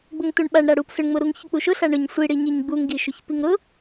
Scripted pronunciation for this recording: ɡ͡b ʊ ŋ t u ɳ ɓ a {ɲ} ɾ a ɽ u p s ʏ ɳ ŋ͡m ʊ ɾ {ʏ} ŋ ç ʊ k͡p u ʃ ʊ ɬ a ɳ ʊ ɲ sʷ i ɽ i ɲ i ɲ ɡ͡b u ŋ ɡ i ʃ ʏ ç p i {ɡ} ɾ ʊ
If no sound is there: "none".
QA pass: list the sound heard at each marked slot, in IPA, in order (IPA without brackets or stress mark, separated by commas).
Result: ɳ, u, ŋ